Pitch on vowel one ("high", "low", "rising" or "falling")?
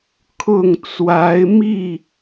falling